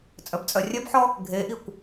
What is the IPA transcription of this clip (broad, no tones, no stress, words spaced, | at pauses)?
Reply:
t͡sʼœbt͡sʼœrʲœbħɔ | ɡʱeʔikʷ